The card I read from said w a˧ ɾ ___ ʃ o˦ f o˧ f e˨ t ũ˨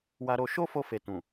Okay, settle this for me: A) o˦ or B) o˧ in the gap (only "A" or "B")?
B